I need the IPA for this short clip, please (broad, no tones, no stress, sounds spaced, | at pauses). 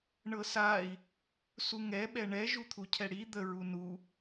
ɳ ɤ s a i̯ | s u ŋ ɛ ɓ ɛ ɳ ɛ ʒ u t̪ʰ u cʰ ɛ ɽ i d̪ ə ɹ u n u